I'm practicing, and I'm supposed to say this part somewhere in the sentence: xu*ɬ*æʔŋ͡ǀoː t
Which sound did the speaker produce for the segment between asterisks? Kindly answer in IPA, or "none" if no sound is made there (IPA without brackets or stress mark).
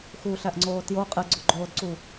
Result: ɬ